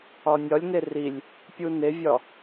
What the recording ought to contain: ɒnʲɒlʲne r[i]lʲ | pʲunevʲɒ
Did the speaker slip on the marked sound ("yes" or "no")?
no